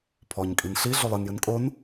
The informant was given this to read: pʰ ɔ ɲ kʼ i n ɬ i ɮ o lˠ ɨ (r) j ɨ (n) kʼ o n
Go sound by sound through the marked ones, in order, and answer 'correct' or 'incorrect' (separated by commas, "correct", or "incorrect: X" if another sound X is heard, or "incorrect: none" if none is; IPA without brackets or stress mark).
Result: incorrect: n, correct